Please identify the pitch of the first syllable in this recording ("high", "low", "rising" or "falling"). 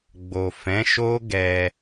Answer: low